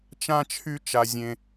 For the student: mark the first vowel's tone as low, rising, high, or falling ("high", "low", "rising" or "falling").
high